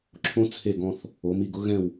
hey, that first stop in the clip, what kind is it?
click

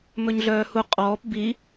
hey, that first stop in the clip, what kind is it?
ejective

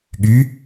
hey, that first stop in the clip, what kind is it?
implosive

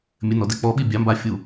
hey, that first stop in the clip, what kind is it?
plain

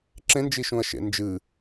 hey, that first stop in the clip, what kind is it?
click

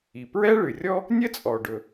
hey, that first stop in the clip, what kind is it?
plain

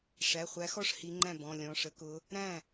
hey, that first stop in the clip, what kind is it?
click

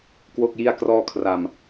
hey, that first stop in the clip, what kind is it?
plain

